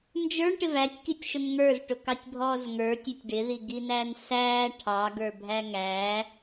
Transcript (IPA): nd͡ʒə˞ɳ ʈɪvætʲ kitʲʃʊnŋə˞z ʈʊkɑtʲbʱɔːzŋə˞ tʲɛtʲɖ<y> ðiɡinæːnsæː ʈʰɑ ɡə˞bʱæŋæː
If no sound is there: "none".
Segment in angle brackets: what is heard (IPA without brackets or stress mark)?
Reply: ɪ